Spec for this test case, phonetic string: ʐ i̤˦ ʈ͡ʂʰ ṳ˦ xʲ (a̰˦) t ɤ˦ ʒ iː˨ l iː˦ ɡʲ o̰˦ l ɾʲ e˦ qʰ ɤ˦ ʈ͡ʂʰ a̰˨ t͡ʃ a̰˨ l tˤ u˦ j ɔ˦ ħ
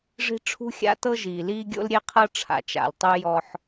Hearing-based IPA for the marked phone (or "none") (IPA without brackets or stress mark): a̰˦